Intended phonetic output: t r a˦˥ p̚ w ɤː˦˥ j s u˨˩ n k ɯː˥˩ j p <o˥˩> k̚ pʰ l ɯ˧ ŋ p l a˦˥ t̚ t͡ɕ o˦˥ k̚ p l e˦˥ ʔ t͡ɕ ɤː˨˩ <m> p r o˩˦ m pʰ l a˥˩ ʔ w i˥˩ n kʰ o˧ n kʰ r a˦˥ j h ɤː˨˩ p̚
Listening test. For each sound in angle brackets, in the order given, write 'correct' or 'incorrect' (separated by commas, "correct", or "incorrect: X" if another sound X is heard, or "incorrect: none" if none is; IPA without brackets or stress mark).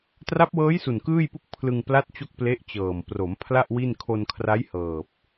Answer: incorrect: u˥˩, correct